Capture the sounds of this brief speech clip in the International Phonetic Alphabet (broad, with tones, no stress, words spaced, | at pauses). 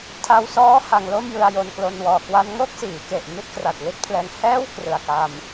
tʰa˧wsɔː˦˥ ha˧ŋlo˥˩m jɯ˧a̯jo˧nklo˧n wɔː˨˩ kwa˧nŋo˥˩k̚ siː˩˦ke˨˩ʔ ni˥˩t̚kra˨˩t̚li˥˩t̚pʰlɛː˧ŋ hɛː˥˩w krɯ˨˩a̯ka˧m